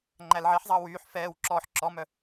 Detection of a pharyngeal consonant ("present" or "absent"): present